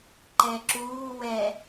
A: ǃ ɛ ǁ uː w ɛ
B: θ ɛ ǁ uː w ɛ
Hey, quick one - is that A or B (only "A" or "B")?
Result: A